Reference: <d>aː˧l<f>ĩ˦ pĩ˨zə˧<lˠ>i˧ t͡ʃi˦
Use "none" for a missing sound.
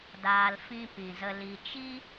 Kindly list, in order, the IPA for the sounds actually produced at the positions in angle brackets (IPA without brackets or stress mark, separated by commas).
d, f, l